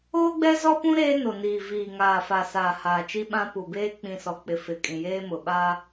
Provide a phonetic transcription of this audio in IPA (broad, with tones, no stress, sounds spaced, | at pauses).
oː˦ ɡ͡b ɛ˦ z ɔ˦ p ũ˦ ɾ eː˦ n o˨ n iː˨ v iː˨ ŋ aː˨ f a˨ s aː˨ h aː˨ t͡ʃ i˦ ɓ ã˦ p u˨ b eː˦ k͡p ĩ˨ s ɔ˨ k͡p ɪ˨ f ɪ˨ kʼ ĩ˨ j eː˦ m ʊ˨ ɓ a˦